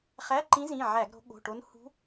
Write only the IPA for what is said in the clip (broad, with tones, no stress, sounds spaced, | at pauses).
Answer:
χ æ˧˥˧ ǃ ĩ˧˥ z ĩ˩˧˩ ʕ æ˧˩˧ ɡ ɾ o̤˩˧ ɠ o̤˩˧˩ ʈ o˧˥ n h ṳ˧˥